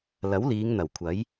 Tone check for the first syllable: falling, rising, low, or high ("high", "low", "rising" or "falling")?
rising